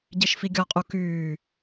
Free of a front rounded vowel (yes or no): no